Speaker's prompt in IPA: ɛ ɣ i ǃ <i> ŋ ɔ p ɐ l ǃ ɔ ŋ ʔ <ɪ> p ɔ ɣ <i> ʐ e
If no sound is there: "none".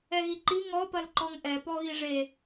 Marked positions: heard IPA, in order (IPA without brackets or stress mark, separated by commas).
i, ɛ, i